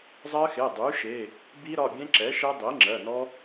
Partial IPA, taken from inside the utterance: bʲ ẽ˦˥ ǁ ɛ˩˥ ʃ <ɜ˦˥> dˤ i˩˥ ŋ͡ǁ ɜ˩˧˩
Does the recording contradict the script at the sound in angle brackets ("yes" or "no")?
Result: yes